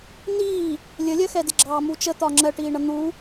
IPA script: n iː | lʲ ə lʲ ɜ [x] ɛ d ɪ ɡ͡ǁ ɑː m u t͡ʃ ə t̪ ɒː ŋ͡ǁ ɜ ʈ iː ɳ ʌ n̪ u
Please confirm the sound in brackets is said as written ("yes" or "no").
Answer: yes